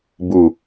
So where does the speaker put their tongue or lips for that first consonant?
lips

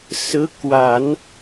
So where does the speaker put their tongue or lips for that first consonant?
tongue tip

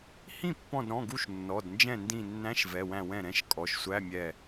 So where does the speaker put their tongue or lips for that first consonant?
throat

